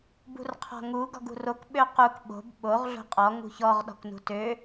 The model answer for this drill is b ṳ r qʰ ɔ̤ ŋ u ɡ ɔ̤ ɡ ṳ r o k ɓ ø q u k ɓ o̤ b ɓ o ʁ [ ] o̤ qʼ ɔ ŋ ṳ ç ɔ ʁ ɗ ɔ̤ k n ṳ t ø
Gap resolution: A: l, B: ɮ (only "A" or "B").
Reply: B